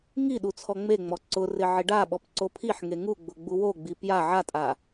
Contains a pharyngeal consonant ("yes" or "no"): yes